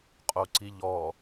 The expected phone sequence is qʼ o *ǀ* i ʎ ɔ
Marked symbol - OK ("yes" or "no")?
yes